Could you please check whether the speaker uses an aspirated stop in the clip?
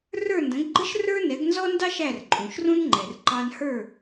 no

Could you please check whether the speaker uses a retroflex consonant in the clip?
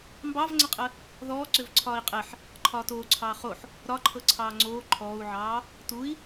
no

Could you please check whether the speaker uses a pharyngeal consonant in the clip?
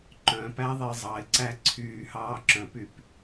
no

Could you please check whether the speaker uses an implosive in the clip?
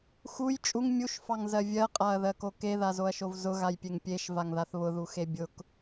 no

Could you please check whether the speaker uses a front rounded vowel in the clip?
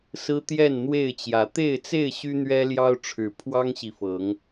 yes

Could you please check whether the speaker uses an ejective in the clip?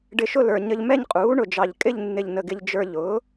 yes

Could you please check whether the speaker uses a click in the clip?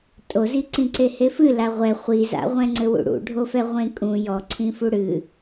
yes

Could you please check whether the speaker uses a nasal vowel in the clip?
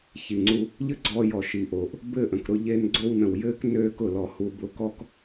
yes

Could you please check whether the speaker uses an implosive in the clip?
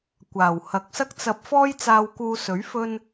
no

